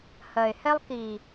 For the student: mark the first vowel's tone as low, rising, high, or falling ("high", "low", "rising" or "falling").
low